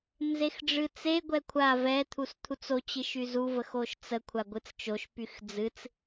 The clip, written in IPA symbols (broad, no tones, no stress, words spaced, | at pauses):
nzexɖ͡ʐɨt͡se ɡʷɛkʷʰa vɛ t̪ʰust̪ʰut͡so t͡ɕɨʃyzu vəxoʃt͡sə kʷʰaɡʷɨt͡st͡ʃoʃ pyxd͡zɨt͡s